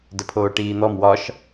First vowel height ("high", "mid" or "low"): mid